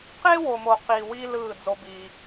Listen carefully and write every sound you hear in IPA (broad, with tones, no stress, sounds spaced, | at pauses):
q e˦ w o˨ m o˨ q i˨ w i˦ l ɯː˦˨ d͡z o˦ b iː˦